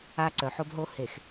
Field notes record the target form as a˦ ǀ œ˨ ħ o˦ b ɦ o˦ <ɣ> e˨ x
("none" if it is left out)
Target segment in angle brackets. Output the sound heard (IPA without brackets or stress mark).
h